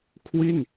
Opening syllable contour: falling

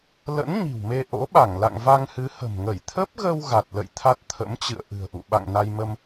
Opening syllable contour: rising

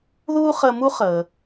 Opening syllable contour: high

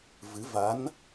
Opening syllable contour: rising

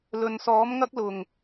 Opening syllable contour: low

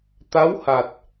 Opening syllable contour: rising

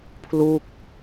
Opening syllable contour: falling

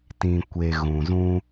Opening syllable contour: low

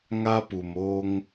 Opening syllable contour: high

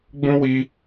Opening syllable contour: high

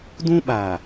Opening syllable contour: high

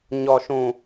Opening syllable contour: low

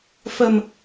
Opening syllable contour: low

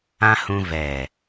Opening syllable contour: high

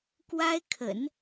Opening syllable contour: high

